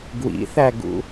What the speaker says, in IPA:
ɡ w ḭ θ æ ɡ ṵ

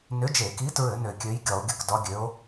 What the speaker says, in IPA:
n ʏ˨˥ d͡ʒ e˧˩˧ k i˨˥ t ɹ ɘ˧˩˧ n ø˧˩˧ kʲ ø˨˥ j ɡʲ ɒ˧˩˧ o̯ ɡʲ ə˨˥ k d ɒ˨˥ ɡʲ ø˨˥ o̯

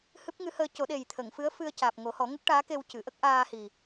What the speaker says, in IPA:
h ɨ˦˥ p̚ ŋ ɨ˧˥ h əː˧ c o˨˩˦ ɗ e˨˩ j t̪ʰ ə˨˩˨ ŋ f ɨ˧˥ ə̯ f ɨ˧ ə̯ c aː˨˩ p̚ ŋ o˨˩˦ h ɔ˨˩˦ ŋ ə˦˥ k̚ ʈ aː˧˥ k e˧ w c ɨ˨˩˨ ʔ ə˦˥ k̚ ʔ aː˧ h i˨˩

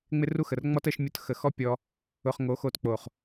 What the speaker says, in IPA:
ŋ͡m ɪ˦ r u˦ x ə˨ r ŋ͡m ɔ˦ t ə˧ ʃ mʲ ʊ˧ t x ə˨ x ɔ˦ pʲ ɔ˧ | ʊ˨ χ ŋ o˨˦ x o˧ t k͡p o˨ χ

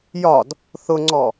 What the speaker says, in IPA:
j ɒ d | θ ʊ ŋ͡ǀ ɔ

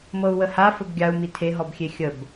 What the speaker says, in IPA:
m ɤ u̯ w ə h a f ə b ɡʲ a u̯ m i tʰ e ɦ ɔ b xʲ e xʲ ə b

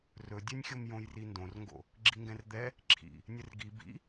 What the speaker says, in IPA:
r ɵ dʲ ɛ nʲ xʲ o m j õ j r i n d õ r ŋ ɡ o̰ | ɡ͡ǁ i ŋ ɡ ɛ̃ r d̪ ɛ | ǁʰ ḭ | nʲ ɘ r ɡ i b ḭ

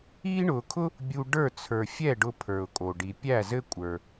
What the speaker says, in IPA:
iː˥ ɳ ʊː˧ kʰ ʊ˥ | bʲ u˥ ɖ ə˞˥˧ t͡sʰ ə˞˧ fʲ ɛ˥˧ ɖ ʊ˥ pʰ ə˞˧ ʊ̯ kʼ o˧ ɖ i˧ pʲ æ˥˧ z ɘ˥ kʷʼ ə˞˧

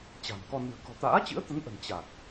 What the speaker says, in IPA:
t͡ɕ a̤˨˩ n k ɔ˧ n ɨ̤˨˩ ə̯ k ɔ̤˨˩ t̪ a̰ː˧˥ t͡ɕ ɨ̰˧˥ ə̯ t̪ ə˨˦ n ʔ ə̤˨˩ n t͡ɕ a˨˩ k̚

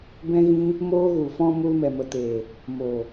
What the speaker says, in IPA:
b ɛ̃˧ ɣ ĩ˧ | m oː˧ ɣ u˨ f ɔ̃˧ m u˧ l m ɛ˨ m ə˨ t eː˨ | m o˨

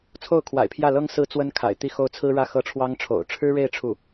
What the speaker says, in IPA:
t͡sʰ o˥˩ ʊ̯ kʰ w a̰˨˩ ɪ̯ pʰ j ä˥˩ l ɤ˥ ŋ s ɹ̩˥˩ t͡s w ə˥ n kʰ a̰˨˩ ɪ̯ t̪ i˥˧ x o˥˩ ʊ̯ t͡sʰ ɹ̩˥ ɻ ä˥˩ x ɤ˥ ʈ͡ʂʰ w ɑ˥ ŋ ʈ͡ʂʰ o̰˨˩ ʊ̯ ʈ͡ʂʰ ɻ̩˥ ɻ e˥˧ ɪ̯ ʈ͡ʂʰ u˥˩

